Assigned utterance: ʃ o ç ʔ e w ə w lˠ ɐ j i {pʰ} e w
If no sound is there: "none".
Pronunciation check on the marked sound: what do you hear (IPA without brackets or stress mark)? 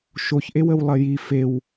f